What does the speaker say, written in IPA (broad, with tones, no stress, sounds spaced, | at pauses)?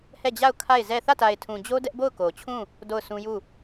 h ɛ˦˨ d͡ʑ a˦˨ ʊ̯ kʰ a˦˨ ɪ̯ z ɛ˦˨ θ ä˦˨ t a˨ ɪ̯ tʰ ũ˨ d͡ʑ o˦ d ɛ˦ ʔ b o˦˨ ʊ̯ k o˨ t͡ɕʰ ũ˦˨ | d o˦˨ ʊ̯ sʰ ũ˦ j u˦˨